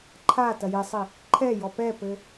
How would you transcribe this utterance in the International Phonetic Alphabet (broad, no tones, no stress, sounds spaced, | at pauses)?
ǃʰ a t ɐ j e sˤ i | ǃʰ ɛ j ɔ p ɛ p ɘ